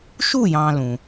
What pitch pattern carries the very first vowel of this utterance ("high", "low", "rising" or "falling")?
falling